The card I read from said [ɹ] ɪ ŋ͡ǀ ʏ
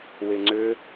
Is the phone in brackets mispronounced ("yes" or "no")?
yes